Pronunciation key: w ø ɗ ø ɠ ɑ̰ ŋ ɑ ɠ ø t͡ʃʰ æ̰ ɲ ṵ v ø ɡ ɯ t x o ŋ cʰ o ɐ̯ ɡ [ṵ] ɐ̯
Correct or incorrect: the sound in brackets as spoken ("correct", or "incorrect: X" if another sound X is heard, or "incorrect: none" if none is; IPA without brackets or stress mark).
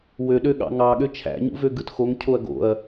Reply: incorrect: o̰